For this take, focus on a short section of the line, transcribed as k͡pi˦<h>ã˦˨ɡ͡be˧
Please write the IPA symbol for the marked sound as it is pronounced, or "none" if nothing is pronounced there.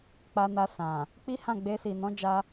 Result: h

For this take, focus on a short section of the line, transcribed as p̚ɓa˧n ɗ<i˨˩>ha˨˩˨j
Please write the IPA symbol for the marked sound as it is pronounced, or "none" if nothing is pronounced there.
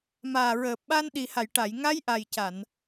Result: i˨˩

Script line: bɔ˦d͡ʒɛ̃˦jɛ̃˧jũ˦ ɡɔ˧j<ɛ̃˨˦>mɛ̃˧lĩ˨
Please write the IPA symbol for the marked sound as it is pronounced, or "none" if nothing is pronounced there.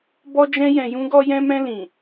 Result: ɛ̃˧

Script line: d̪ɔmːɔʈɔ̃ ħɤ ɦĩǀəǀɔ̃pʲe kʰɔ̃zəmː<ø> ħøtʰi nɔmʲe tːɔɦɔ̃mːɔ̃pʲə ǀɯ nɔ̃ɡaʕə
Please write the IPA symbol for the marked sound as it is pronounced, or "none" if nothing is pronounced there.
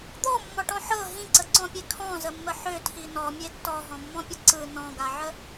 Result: ə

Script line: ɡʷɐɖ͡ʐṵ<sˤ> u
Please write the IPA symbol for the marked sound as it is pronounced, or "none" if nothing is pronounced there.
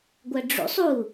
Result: sˤ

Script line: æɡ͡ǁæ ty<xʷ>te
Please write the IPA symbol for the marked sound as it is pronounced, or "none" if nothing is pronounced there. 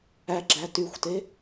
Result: xʷ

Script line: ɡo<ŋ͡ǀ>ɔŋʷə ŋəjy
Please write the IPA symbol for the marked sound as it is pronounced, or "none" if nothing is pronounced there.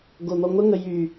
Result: n̪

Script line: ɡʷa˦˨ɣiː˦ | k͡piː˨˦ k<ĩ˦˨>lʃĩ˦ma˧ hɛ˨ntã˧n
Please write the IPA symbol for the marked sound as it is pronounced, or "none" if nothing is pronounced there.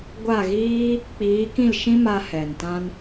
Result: ĩ˦˨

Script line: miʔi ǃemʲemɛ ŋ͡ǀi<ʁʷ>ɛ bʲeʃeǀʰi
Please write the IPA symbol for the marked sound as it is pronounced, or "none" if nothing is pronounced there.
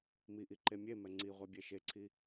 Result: ʁʷ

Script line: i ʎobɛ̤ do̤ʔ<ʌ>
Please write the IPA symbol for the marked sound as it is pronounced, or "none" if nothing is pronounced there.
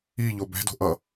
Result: ʌ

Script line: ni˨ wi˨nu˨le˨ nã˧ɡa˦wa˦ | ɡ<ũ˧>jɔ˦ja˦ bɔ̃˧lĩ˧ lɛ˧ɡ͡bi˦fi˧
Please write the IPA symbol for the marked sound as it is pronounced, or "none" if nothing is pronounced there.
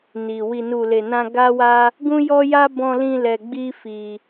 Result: ũ˦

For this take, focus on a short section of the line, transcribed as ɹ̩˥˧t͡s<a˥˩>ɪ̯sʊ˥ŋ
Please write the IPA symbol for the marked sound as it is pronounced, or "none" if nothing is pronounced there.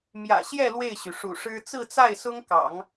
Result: a˥˩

